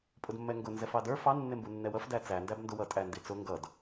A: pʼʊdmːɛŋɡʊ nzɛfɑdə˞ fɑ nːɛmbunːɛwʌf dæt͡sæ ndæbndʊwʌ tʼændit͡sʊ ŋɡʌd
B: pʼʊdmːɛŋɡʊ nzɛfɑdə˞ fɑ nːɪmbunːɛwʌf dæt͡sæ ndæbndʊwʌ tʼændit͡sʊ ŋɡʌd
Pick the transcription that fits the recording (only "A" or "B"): B